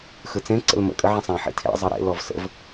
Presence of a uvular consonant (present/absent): absent